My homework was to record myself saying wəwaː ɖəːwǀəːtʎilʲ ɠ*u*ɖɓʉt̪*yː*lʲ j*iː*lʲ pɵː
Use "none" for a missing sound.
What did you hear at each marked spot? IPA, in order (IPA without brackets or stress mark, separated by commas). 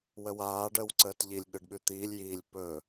ɯ, iː, iː